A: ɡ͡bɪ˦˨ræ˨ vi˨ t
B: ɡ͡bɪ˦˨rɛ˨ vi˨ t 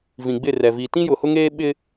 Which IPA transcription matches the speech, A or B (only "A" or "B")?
B